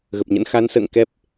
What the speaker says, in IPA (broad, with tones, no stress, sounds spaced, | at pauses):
ɣ ə˨˩ p̚ ɲ ə̰˧˥ n x a˨˦ n s ə̰ː˧˨ ŋ k ɛ˦˥ p̚